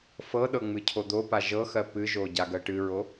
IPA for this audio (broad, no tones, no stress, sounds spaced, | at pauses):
f ɤ ɗ ɤ ŋ͡m ɨ cʰ o d̪ o p a ʒ ɤ x ɜ p ɨ ʒ o ɟ a ɡ ɜ ʈ ɨ ɹ o